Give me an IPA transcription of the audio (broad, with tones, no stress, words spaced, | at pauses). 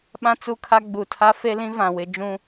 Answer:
ɓã˦ t͡su˦kʰa˦ ɡ͡bu˨tʰa˦fe˦lĩ˦ vã˨wɪ˦ d͡ʒũ˦